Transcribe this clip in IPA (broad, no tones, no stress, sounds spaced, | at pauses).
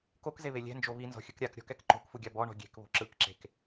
k o k z e β e lʲ ɛ̤ n d͡ʒ o β i n z ɔ̤ xʲ ɯ k ɾʲ a k ɾʲ ɔ̤ k ɛ k ǃ o̤ k f u ɡʲ a b ɔ ɳ ɔ̤ ɡʲ e̤ k β o̤ ǁ ɯ k ǁ e̤ k